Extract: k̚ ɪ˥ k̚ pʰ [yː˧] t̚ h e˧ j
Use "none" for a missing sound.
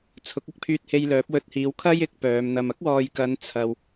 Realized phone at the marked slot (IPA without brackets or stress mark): yː˧